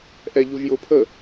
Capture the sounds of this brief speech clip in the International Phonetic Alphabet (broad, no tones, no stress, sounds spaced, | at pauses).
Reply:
ʔ ɛ ʎ u ʒ j ʊ pʰ ə